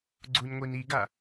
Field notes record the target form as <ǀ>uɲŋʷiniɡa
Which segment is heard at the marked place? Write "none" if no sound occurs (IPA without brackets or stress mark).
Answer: ɡ͡ǀ